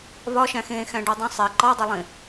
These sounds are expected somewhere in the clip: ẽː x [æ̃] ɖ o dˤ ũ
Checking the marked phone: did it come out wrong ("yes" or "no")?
no